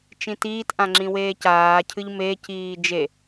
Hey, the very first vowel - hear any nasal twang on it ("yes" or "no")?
yes